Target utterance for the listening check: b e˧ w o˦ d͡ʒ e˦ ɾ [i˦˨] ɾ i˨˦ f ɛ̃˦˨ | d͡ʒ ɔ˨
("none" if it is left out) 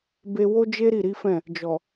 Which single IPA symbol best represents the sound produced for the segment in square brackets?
i˦˨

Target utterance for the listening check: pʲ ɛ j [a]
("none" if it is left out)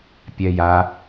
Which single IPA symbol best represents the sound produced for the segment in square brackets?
a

